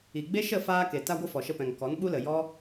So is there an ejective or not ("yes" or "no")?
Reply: no